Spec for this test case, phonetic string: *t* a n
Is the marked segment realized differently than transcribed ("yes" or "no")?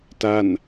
no